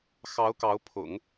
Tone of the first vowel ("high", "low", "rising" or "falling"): rising